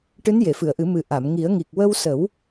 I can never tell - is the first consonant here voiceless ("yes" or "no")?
yes